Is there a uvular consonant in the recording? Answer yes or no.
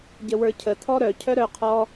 yes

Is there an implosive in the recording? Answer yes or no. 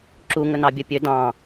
no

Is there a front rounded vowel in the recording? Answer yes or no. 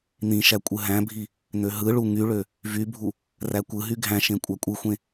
yes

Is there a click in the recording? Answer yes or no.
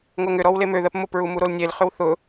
no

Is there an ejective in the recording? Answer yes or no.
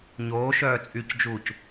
yes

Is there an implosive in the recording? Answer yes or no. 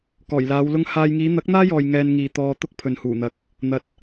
no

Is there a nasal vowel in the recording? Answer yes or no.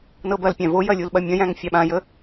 yes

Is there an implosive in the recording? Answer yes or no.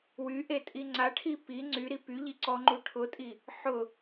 no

